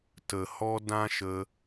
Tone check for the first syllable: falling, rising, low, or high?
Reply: low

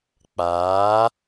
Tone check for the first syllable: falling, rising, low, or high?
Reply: rising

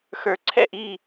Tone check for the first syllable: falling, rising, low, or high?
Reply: low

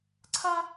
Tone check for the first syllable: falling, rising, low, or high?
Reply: high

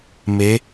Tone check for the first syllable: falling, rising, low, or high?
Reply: rising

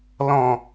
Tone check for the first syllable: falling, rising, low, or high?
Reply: low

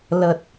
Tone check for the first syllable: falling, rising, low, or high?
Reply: low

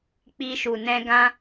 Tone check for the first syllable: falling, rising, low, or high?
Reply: high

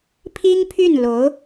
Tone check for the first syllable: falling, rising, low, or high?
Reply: high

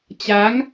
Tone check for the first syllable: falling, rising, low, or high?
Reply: rising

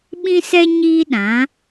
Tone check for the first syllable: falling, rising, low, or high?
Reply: high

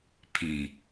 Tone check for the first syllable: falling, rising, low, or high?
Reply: low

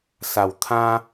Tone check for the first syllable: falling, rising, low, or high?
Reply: low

